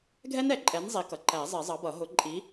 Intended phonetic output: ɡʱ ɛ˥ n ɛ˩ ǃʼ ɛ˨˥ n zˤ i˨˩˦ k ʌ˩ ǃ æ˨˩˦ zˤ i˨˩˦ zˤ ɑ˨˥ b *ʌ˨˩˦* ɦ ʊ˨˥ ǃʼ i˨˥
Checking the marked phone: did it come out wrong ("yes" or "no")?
no